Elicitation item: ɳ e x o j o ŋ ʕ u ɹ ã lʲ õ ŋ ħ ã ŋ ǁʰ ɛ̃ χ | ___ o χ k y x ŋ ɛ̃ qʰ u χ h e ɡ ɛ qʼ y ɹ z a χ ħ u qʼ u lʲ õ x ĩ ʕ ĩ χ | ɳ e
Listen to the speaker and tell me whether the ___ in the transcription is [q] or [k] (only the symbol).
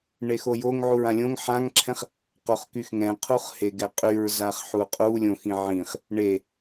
q